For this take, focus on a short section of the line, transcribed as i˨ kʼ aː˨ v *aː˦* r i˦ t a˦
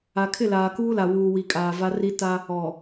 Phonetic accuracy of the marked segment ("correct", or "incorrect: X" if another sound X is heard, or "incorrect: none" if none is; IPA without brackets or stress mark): incorrect: a˦